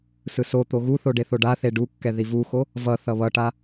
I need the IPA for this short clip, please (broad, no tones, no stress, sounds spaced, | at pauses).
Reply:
s ɯ s o t̪ o ɣ u θ o ɖ e θ o ɖ a θ e ɖ u kː ɛ ð i v u x o | v ʌ θ ʌ β ʌ ʈ a